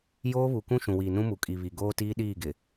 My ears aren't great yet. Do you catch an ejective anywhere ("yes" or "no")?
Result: yes